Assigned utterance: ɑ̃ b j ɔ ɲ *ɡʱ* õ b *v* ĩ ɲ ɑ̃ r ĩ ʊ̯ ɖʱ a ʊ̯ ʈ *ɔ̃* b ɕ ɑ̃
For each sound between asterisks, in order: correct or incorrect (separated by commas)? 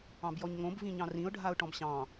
incorrect, correct, correct